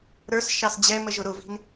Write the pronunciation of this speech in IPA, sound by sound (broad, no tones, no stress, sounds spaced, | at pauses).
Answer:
ɾ ə˞ s ʃ ɑ s d͡ʑ ɛ m ə ʒ ʊ ɾ ʊ v i̤ n